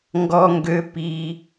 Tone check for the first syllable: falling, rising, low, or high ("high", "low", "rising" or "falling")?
high